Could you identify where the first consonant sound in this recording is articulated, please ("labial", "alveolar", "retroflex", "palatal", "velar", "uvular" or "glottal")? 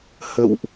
glottal